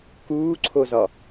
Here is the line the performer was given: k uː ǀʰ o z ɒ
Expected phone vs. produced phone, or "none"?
none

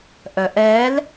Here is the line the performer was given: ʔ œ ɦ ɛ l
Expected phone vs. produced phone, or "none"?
ɦ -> ʔ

